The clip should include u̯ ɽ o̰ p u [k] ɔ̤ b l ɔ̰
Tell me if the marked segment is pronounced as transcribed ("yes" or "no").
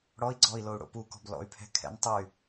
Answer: yes